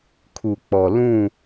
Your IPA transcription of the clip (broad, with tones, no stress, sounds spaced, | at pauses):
kʰ u˨ k͡p ɔ˨ l ũ˦˨